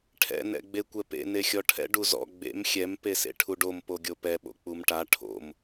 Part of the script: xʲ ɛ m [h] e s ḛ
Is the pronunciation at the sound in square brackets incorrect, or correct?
incorrect: p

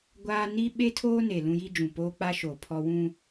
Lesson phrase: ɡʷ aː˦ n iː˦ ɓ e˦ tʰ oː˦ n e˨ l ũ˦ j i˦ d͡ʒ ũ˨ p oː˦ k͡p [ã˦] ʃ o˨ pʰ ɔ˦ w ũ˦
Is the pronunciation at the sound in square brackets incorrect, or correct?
incorrect: a˦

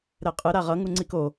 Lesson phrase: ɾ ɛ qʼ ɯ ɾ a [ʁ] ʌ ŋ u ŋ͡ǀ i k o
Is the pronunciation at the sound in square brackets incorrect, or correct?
correct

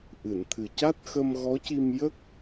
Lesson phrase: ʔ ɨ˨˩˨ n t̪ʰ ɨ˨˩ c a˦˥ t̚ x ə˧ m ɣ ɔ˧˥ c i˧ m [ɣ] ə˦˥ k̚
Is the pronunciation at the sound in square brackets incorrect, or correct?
incorrect: j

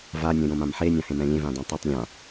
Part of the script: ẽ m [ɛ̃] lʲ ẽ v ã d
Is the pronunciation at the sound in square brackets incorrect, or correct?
correct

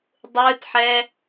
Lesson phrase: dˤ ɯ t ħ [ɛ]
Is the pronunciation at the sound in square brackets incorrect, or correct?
correct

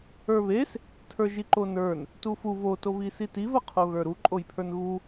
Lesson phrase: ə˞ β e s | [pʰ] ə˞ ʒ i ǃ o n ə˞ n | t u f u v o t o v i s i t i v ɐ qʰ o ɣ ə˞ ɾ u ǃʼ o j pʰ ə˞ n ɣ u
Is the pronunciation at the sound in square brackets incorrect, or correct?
incorrect: tʰ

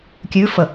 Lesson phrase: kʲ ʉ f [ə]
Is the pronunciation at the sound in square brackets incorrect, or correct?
correct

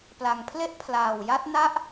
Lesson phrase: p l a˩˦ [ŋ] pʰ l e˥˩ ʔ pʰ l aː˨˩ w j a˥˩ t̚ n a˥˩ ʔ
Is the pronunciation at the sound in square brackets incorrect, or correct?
correct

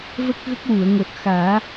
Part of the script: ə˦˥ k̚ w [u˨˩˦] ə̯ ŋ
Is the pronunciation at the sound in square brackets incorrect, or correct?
incorrect: u˨˩˨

